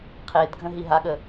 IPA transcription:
qʰ e d ɡʱ ə̃ ɦ i ɦ a ɠ ə

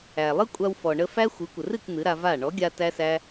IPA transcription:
æ˨ lˠ ɨ˦ kʷʼ a˧ w f ɔ˨ ɳ ə˧ f æ˦ xʷ ɨ˨˦ kʷ ə˨ r ɨ˦˨ k n̪ ɨ˨˦ ɾ a˧ v a˦˨ ɳ ɔ˨˦ ɡʲ a˧ t æ˦ s æ˦

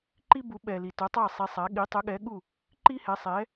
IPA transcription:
ǃ i˥ b u˩˥ ɓ ɛ˩ l i˩ t œ˩˥ tˤ a˥˩ sˤ i˩˥ sˤ a˩˥ ɠ i˩˥ tˤ œ˩˥ ɠ ɛ˩˥ ɠ u˥˩ | ǃ i˥ h ɛ˩˥ sˤ ɛ˩˥

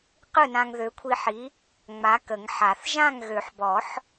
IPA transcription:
q ɯ˥˨ n ã˧ ŋ ð ø˨˥ kʷʰ i˧ ħ i˨˥ | ŋ͡m a˨˥ k ə˨˩˦ ŋ ħ a˨˩˦ θ ʒ ã˥˨ ŋ ɣ ø˨˩˦ ħ b ɔ˨˩˦ ħ

